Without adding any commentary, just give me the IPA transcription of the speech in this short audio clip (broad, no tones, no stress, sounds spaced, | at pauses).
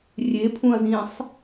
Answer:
rʲ e pʰ ũ ɐ̯ z ĩː sˤ